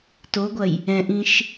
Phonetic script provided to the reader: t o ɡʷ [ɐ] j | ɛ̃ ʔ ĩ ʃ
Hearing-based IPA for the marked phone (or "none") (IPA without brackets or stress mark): ɐ